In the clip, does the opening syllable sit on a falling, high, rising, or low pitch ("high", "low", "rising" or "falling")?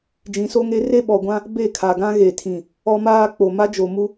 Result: rising